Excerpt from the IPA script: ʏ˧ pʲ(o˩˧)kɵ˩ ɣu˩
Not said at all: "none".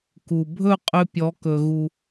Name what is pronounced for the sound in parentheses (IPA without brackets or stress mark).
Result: ɔ˩˧